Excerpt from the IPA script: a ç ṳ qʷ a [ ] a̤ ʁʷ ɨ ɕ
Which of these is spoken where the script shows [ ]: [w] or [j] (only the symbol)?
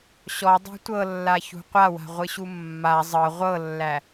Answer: w